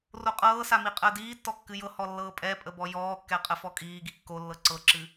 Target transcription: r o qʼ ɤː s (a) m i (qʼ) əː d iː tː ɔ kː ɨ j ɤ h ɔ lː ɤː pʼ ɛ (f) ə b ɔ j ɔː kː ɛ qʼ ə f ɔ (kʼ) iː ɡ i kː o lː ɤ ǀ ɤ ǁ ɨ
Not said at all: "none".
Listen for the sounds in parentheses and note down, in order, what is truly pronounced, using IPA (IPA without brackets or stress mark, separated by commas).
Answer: a, qʼ, pʼ, kʼ